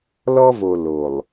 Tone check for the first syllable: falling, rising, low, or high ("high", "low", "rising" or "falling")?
high